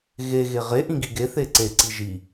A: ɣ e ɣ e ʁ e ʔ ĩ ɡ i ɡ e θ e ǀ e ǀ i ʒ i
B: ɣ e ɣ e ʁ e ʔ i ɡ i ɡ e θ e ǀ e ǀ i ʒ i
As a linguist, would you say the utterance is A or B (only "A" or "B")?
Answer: A